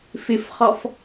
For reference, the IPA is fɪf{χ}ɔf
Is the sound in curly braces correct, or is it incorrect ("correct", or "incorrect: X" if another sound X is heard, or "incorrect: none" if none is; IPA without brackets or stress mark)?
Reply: correct